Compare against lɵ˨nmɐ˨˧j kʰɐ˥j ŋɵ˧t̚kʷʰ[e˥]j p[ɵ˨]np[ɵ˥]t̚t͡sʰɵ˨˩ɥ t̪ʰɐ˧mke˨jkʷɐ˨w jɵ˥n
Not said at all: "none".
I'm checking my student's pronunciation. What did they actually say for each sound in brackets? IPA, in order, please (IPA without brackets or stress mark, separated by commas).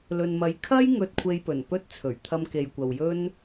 e˧, ɵ˨˩, ɵ˥